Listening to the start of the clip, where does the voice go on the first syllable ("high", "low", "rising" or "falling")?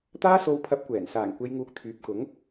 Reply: high